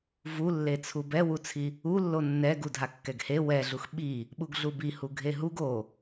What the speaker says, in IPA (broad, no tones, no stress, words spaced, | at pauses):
vulːet͡sʰu bɛwut͡sʰi | ulːo nːɛ ɡudʱakːɛɡhe wɛɮux ɓi | ɓuɡɮubihu ɡʱeɦuɡ o